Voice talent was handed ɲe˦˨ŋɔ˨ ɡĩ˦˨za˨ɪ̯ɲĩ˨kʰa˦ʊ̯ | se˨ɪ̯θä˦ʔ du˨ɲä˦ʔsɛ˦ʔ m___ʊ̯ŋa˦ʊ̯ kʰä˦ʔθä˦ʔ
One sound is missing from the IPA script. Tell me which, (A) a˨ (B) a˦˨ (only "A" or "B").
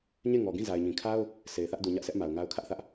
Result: A